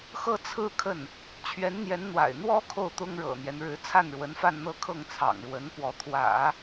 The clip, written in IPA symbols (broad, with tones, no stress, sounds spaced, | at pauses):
x ɤ˥˧ t͡sʰ ɹ̩˥˧ kʰ ə˥˩ n | t͡ɕʰ ɥ ɛ˧˥ n n̪ j ɛ˧˥ n n̪ w a̰˨˩ ɪ̯ n̪ w ɔ˥ kʰ o˥˩ ʊ̯ t̪ ʊ˥ ŋ ɻ ɤ̰˨˩ n̪ j ɛ˦ n ɻ ɻ̩˧˥ t͡sʰ a˥˩ n ɻ w ə˧˥ n f a˥˧ n n̪ ɤ˥˧ kʰ ɤ˥˩ ŋ t͡sʰ ɑ̰˨˩ ŋ ɻ w ə˧˥ n p w ɔ˧˥ t̪ʰ w ä̰˨˩˦